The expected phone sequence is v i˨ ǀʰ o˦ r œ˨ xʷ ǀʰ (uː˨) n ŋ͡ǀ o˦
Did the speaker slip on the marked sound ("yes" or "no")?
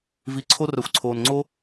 yes